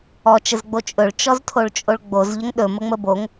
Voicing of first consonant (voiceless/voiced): voiceless